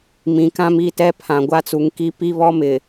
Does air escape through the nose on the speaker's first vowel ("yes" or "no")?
yes